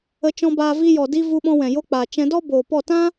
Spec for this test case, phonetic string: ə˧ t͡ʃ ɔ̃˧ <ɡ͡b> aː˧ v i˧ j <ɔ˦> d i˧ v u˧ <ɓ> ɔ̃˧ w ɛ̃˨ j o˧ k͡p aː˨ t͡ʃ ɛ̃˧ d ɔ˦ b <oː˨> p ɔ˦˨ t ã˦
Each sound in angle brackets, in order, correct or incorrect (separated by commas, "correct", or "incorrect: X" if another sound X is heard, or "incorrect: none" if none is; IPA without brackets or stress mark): incorrect: b, incorrect: ɔ˨, correct, correct